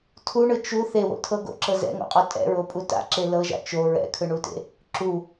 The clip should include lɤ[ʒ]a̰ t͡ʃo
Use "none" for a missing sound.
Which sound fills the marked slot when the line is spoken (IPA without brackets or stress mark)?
ʒ